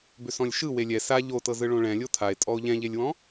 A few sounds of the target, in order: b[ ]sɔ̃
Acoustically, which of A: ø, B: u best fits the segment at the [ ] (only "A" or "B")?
A